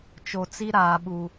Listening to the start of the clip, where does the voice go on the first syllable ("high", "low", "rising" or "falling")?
low